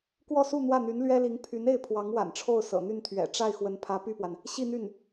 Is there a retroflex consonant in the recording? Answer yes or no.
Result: yes